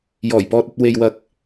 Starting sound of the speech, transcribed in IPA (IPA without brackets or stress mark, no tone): j